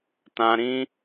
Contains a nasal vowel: yes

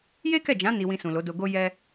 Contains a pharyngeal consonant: no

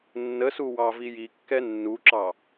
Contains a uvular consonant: no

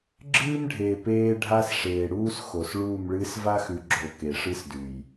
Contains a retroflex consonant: yes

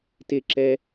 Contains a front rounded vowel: no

